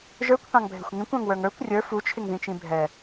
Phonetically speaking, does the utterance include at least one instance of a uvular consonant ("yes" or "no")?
no